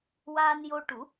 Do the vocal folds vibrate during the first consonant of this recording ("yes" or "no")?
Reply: yes